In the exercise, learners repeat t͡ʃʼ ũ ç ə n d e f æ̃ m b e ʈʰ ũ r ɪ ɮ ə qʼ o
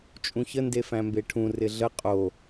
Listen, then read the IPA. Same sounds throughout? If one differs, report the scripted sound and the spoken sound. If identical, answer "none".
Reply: none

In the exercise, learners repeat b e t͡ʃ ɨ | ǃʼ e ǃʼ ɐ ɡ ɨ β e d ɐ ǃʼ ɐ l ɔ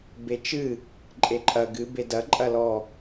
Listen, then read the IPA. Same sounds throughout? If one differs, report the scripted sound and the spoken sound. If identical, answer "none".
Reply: β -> b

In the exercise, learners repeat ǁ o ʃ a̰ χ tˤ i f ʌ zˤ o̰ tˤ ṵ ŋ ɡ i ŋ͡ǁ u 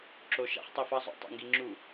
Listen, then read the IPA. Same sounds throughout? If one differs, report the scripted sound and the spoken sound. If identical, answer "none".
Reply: none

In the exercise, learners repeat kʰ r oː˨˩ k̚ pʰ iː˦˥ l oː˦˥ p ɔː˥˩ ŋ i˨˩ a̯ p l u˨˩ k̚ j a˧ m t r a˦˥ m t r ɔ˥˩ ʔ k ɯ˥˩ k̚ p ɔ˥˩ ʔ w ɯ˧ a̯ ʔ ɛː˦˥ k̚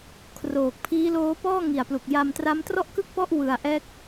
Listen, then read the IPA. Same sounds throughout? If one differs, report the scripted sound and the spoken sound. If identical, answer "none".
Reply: none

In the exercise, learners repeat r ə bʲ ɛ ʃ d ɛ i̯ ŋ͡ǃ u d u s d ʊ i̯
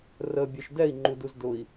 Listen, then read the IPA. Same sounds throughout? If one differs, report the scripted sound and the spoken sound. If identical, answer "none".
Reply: s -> z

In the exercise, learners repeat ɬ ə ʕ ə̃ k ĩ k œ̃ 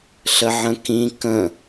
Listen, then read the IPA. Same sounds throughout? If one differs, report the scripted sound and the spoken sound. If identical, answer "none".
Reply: œ̃ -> ə̃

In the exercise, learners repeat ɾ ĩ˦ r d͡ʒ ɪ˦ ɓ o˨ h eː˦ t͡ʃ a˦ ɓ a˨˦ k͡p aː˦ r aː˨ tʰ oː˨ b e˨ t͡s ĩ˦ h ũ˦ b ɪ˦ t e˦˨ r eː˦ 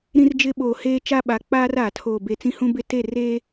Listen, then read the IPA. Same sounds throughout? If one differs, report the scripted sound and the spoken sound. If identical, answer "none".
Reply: none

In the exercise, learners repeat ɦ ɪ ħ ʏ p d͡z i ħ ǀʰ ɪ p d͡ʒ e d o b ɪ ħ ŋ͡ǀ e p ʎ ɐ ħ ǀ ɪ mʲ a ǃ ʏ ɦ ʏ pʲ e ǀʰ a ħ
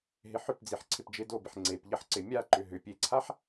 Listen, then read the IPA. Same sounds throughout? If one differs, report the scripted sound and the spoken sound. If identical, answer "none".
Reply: none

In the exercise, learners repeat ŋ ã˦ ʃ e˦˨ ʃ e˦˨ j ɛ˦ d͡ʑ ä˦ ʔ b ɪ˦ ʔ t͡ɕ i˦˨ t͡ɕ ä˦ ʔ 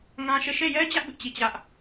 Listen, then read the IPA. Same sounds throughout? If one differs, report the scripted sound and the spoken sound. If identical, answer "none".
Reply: none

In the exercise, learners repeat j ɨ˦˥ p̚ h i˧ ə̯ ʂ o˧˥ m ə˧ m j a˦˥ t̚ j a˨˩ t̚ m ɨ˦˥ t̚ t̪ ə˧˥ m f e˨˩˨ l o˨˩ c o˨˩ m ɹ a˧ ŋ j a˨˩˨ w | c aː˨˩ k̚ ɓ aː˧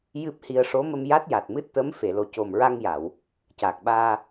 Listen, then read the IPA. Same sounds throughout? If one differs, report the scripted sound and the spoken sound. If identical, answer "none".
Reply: none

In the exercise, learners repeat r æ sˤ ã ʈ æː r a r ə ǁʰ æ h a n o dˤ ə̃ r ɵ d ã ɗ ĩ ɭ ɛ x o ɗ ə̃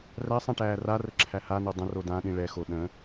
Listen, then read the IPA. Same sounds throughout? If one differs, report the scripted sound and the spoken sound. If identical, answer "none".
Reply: ɵ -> o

